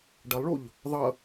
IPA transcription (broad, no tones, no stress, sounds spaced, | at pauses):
ɖ ʌ lˠ ɭ u ʎ | ðˤ ʌ